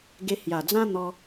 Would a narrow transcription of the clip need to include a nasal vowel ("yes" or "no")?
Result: yes